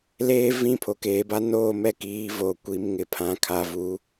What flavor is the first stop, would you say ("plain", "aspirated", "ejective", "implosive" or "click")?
aspirated